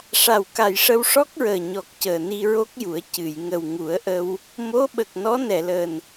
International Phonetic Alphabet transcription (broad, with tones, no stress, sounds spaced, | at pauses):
ʂ a˨˩ w k a˨˩ j ʂ ə˧ w ʂ ɔ˦˥ k̚ ɹ əː˨˩ ɲ ɔ˨˩ k̚ c əː˨˩ n i˧ ɹ o˦˥ k̚ j u˨˩˦ ə̯ c ɨ˨˩˨ j ŋ ə˨˩ w ŋ u˨˩˦ ə̯ ʔ ə˧ w | m o˧˥ ɓ ə˨˩ k̚ n ɔ˧˥ n ɛ˨˩˨ l əː˨˩ n